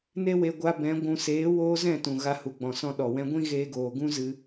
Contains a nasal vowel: yes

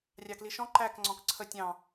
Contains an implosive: no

